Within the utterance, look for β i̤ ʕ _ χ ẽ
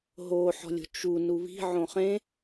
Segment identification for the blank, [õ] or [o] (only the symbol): õ